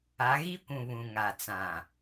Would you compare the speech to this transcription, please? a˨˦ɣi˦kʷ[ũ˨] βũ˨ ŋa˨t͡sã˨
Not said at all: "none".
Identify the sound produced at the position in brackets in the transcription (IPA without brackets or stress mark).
ũ˨